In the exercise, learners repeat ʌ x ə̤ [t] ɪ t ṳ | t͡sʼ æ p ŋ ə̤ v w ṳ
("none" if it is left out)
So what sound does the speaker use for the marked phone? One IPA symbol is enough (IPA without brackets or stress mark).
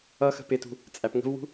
p